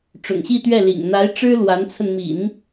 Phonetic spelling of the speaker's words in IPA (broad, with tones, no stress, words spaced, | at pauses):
ʈ͡ʂʊ̰˨˩ŋɕi˥˧t̪ɥɛ˥˩lḭ˨˩ŋ n̪a˧˥ɪ̯ʈ͡ʂɻ̩˥ lwa˧˥nt͡sʰə˧nmḭ˨˩˦n